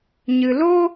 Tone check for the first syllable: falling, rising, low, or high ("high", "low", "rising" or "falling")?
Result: low